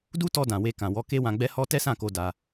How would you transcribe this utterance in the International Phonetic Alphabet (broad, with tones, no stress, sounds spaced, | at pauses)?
d u˦ t ɔ˧ d ã˨ w e˧ k ã˨ w ɔ˨˦ k e˦ w ã˧ ɡ͡b ɛ˦ h ɔ˦ t ɛ˦ s ã˦˨ k o˧ d a˧